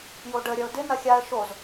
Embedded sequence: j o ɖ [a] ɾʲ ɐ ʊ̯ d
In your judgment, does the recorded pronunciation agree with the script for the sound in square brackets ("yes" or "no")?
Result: no